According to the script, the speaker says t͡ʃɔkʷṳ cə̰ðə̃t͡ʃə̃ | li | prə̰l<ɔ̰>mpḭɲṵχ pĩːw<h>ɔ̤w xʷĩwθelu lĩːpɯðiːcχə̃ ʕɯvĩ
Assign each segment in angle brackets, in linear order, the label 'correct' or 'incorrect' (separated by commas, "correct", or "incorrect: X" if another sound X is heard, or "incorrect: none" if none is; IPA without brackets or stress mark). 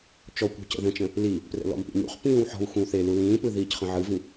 correct, incorrect: ħ